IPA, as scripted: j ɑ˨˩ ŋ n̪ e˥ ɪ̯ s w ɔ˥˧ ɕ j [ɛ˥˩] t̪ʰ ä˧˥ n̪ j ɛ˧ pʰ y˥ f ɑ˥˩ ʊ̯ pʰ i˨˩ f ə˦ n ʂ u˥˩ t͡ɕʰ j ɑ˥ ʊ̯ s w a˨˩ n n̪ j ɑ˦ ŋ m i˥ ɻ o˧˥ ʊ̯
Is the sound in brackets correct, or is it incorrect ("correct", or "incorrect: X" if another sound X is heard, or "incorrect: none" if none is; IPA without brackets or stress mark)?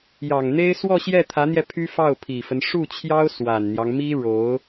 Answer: correct